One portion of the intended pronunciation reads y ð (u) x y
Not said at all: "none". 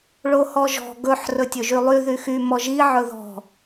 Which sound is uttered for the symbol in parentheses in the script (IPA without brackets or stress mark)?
y